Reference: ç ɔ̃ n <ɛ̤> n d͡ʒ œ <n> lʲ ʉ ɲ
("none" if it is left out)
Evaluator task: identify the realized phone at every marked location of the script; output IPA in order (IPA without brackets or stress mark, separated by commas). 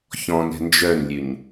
ɛ̤, n